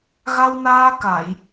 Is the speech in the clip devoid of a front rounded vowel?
yes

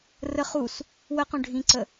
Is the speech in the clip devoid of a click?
no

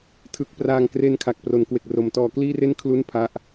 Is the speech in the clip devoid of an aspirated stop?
no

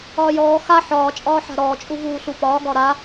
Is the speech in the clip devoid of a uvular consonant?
yes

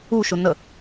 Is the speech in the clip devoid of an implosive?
yes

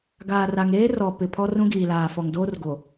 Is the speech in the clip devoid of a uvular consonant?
yes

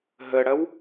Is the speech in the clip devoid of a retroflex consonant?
no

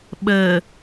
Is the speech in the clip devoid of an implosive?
no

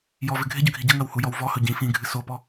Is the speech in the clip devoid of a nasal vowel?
no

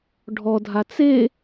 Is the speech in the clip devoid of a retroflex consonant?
no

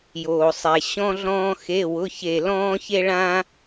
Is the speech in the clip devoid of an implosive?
yes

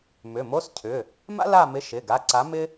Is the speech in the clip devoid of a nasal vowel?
yes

